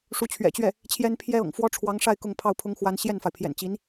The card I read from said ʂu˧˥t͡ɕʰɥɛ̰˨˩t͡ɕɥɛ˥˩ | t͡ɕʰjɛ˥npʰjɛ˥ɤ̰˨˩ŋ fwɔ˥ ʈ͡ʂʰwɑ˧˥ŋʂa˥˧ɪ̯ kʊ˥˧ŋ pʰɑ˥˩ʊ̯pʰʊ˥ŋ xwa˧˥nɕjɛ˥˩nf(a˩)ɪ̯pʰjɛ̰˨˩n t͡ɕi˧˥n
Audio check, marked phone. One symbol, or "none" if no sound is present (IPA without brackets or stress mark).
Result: a˩